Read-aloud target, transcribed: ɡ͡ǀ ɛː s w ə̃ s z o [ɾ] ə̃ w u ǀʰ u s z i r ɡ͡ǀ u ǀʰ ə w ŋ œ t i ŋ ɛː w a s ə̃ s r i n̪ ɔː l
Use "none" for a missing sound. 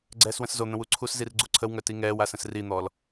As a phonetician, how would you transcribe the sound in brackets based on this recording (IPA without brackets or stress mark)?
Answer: n̪